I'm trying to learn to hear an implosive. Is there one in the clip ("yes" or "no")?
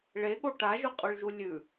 yes